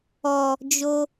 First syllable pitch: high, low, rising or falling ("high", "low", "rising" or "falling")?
low